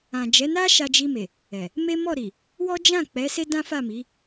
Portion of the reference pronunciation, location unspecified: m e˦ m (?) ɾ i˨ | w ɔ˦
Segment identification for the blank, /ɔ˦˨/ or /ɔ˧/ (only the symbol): ɔ˦˨